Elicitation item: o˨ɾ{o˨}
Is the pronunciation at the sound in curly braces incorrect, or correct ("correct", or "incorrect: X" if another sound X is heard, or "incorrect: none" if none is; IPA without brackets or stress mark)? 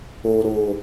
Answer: correct